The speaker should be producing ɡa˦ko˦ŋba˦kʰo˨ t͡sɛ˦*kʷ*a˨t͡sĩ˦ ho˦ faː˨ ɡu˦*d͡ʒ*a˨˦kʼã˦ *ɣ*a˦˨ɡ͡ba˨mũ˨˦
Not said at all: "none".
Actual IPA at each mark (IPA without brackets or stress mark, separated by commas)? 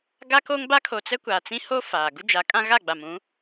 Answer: kʷ, d͡ʒ, ɣ